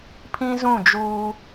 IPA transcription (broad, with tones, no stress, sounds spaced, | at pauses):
pʰ ĩ˦ z ũ˦˨ d͡ʒ uː˦